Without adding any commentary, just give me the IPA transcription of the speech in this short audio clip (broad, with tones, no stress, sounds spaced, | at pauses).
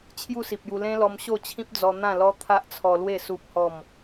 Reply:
t͡ɕʰ j u˥˧ s i˨ p̚ j u˧ l ẽ˦ l ɔ˧ m ɕ o˥˧ t͡ɕʰ ĩ˦ p̚ d͡z ɔ˧ n̪ ã˥˧ l ɔ˦ t̪ʰ a˦ ʔ t͡sʰ ɔ˧ l w e˥˧ s u˦ p̚ h ɔ˥˧ m